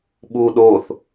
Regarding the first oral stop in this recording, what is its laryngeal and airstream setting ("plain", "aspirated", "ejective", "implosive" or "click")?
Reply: implosive